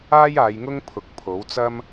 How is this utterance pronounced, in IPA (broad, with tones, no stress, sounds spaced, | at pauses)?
aː˥ j aː˨˧ j ŋ ʊ˥ ŋ pʰ ʊ˨˥ k̚ pʰ o˨˥ w t͡s ɐ˥ m